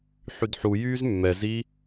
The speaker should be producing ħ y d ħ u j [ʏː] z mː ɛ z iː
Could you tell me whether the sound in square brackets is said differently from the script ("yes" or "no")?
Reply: yes